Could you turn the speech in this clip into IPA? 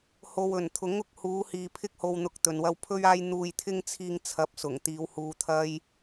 h o˨ w ɵ˨˩ n t̪ʰ ʊ˨˥ ŋ ʊ˨˥ k̚ h uː˨˧ h iː˨ pʰ ɪ˧ k̚ h o˨ w n̪ ʊ˨ k̚ t̪ ɵ˨ n w ɐ˥ w pʰ ɵ˥ ɥ aː˥ j n̪ uː˧ j t̪ʰ ɪ˥ ŋ t͡sʰ iː˧ ŋ t͡sʰ ɐ˨˥ p̚ s ʊ˨˩ ŋ t̪ iː˨˧ w h uː˧ t̪ʰ ɐ˥ j

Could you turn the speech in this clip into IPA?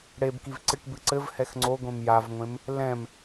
ɽ e b k i v ǀ ɨ ʈ b ɨ ǀ ɘ v h ɛ x ŋ͡ǀ o ɡʷ ẽ m j a v ŋʷ ẽ m | l ɛ̃ m

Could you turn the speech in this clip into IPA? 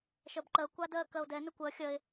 ʃ ɜ b ǃ ɜ kʷ a d ɜ k ɜ o̯ d ɛ n ə kʷ ɜ xʲ ɜ e̯

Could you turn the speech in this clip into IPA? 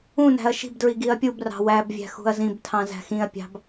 ũ n æ̤ ɐ̯ ʃ i̤ b d ɹ i ɡ i ɐ̯ pʲ u b r ɑ̤ w æ b vʲ æ̤ x ṳ ɐ̯ z ĩ b tʰ ɑ̃ z æ̤ x ĩ ɐ̯ pʲ ɑ̤ b

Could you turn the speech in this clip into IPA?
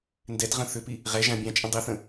n d ɛ t ʁ ə̃ θ ʏ p i | ʁ ɛ ʒ ã bʲ ã t͡ʃʼ ə̃ dˤ i θ ə̃

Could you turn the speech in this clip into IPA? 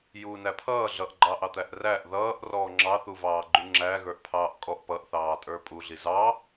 j uː n æ pʰ ʌː ɮ ʌ ʔ ɡ͡ǃ ɑː ʔ ɑ t̪ æ ʔ r æ ʔ ð ʌː ʔ r ɔː ŋ͡ǁ ɑ θ u v ɑː ɡ͡ǃ u ŋ͡ǁ æ ɣ ə˞ ʔ pʰ ɑː ʔ kʼ ɔ ʔ p ʌ ʔ θ ɑː tʼ ə˞ pʼ u ɮ i z ɑ

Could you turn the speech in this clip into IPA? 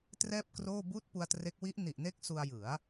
t r ɛː˥˩ p̚ k r oː˥˩ b uː˥˩ t̚ p u˧ a̯ t r e˦˥ k̚ w i˦˥ ʔ n i˨˩ ʔ n e˥˩ k̚ s u˧ a̯ j ɯ˩˦ a̯

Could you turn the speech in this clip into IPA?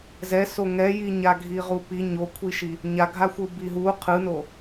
z ɛ s o ŋ ɛ j i ɲ a ɡʱ i ʁ u p i ɲ o kʷʰ i ʃ i | ɲ a ɡʱ a xʷ ɯ b i ɦ u qʰ ɯ n o

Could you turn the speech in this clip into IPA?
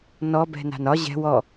n ɔ b ɛ̤ n a̤ n ɒ ʑ ɛ̤ w ɔ

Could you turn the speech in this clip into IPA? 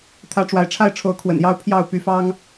t̪ʰ ä˦ ʈ͡ʂ w a˨˦ ɪ̯ ʈ͡ʂʰ a˥˨ ɪ̯ ʈ͡ʂʰ o˨˦ ʊ̯ kʰ w ə̰˨˩ n j ɑ˦ ʊ̯ pʰ j ɑ˥˨ ʊ̯ p y˨˦ f ɑ˦ ŋ

